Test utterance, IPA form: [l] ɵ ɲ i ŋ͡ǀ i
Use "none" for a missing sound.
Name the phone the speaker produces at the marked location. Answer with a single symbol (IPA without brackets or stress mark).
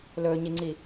l